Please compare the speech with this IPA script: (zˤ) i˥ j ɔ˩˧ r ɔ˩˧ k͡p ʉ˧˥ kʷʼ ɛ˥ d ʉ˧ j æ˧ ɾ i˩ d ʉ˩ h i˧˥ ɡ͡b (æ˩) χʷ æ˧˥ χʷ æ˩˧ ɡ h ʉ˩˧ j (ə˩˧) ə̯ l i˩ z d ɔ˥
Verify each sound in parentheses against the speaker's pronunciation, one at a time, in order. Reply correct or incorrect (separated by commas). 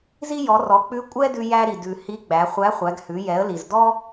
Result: incorrect, incorrect, incorrect